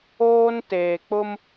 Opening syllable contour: high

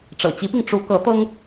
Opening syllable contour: low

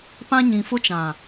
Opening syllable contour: high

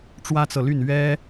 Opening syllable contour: high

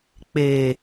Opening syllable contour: low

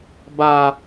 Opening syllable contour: low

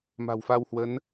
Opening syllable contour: low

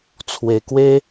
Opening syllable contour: low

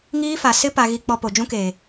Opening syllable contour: high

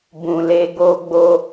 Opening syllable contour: low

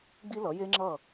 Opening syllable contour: high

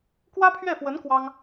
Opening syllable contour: high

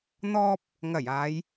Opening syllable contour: high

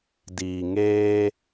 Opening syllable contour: low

